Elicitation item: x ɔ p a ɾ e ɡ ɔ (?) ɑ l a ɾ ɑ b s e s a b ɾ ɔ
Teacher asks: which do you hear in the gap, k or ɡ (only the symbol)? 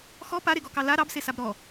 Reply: k